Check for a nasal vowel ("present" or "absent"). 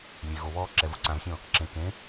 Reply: present